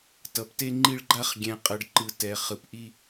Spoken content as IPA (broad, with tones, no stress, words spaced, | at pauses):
tʌ˨pte˦ŋ͡ǃi˦ɭɡ͡ǃa˦χ ɡʲɛ̃˨qʼʌ˨ɖǃɯ˨ tɛ˨ χɯ˨pʔi˦